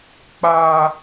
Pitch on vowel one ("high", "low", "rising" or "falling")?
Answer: high